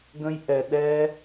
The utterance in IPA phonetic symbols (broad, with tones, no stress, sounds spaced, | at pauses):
ɡ ə̃˦ j ʔ ɛ˧ ɗ ɛ˦